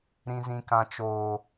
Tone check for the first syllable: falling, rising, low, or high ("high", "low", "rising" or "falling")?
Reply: low